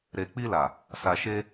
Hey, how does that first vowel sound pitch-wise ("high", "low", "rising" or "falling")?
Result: low